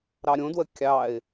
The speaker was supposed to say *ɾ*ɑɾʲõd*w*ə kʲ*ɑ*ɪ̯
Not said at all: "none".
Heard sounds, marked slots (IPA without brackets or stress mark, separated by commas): ɾ, w, ɑ